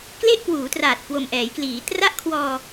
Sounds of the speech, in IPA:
kle˥˩ʔkwuː˩˦traː˨˩t̚ kwo˨˩mʔɛː˩˦jkliː˩˦ tra˦˥ʔkʰwɔː˧

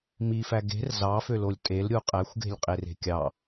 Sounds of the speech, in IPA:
mifæ ɡe̤r zɑfølolʲ tʼelɾʲu qʼæxʷɡe̤lʲqʼere̤ kʲɑ

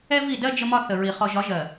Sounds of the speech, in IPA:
ɛ˦vi˦˨dɜ˦ d͡ʒə˦mɒ˦θə˨ ɹi˨ χɔ˨ʒɒ˨˦ʒɜ˨

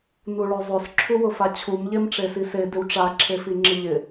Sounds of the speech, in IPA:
nuɭozˤos ǁʰuwʊfat͡ɕʰum ʎemʈ͡ʂesise dɪwʈ͡ʂa ǁʰefiŋ͡ǁɪʎɪ

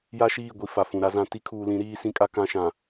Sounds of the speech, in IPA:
ja˦ʃiː˦˨ɡʷi˨ fa˨fũ˨ɾa˦zã˦ ti˦kʰuː˨lĩ˨˦ ɾiː˦sĩ˦kʼa˦ kã˦ʃã˨

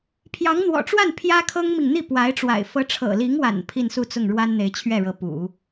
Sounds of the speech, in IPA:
pʰjɑ˧˥ŋn̪wɔ̰˨˩ʈ͡ʂwa˥˩n pʰjä˥ kʰɤ˥ŋmi˨ŋ n̪i˥˩pwa˧˥ɪ̯ʈ͡ʂwa̰˨˩ɪ̯ fɤ˧˥ʈ͡ʂʰɤ̰˨˩li˧˥ŋwa̰˨˩n pʰi˥˧nsu˥˧t͡sʊ˥˩ŋ ɻwa˥nn̪e˧˥ɪ̯t͡ɕʰɥɛ˥˩ɻɤ˧˥ pṵ˨˩˦

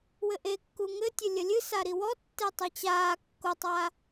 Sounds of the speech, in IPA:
wɘʔekːu ŋɘtʲɘ lʲɐlʲɨ saɾiwɔtːe tˤit͡ɕaː kːotˤa

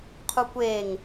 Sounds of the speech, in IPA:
qʰukʷeːŋ

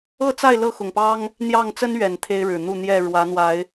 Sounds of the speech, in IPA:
ɤ˥˨t͡sa˥˨ɪ̯ lɤ˥˨xʊ˨˩ŋpɑ˦ŋ | n̪jɑ˥˨ŋ t͡sə˦n ɥɛ˨˩n t̪ʰe˦ɪ̯ɻɻ̩˨˩n̪u˥˨ n̪jɛ˨˩ ɻwä˨˦n̪wa˨˦ɪ̯

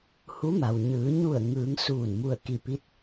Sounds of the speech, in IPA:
hu˧˥ma˩w ɲɯː˩˧ɲu˧˩ə̯ ŋɯː˩˧ŋ suː˧˩n mu˧˩ə̯ki˧˩pi˧˥t̚

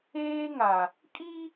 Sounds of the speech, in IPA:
eː˦ŋa˨ | kʼi˦

